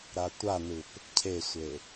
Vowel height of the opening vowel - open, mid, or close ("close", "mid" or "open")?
open